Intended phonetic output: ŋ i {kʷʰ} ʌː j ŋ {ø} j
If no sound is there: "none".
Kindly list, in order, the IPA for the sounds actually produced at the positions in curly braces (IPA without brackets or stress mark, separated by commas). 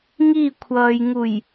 kʷʰ, u